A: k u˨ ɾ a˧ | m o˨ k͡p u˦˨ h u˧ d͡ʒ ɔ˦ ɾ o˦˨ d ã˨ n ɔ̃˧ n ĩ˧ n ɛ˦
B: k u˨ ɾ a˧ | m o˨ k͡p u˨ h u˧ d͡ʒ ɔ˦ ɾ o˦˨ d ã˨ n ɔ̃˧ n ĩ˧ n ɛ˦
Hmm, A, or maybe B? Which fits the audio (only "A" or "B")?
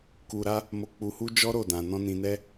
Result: B